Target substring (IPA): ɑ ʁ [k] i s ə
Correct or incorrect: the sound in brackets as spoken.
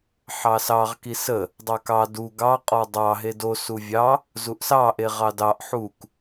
correct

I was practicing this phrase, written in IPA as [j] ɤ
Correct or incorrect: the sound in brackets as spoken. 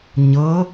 incorrect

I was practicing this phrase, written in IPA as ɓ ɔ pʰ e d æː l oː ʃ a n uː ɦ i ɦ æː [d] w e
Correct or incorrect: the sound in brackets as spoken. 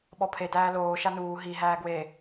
incorrect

